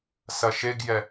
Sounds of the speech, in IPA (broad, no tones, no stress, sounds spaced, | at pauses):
s ɐ ʃ e ɡ j ɛ